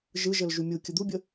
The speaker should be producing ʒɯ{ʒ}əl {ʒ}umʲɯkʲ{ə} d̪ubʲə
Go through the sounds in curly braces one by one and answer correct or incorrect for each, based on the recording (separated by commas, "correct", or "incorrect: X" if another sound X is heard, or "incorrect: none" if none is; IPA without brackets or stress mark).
correct, correct, correct